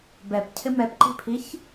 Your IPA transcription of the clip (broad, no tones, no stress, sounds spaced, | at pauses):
b ɛ p cʰ ɪ m ɛ p ǃ i̤ pʰ i ç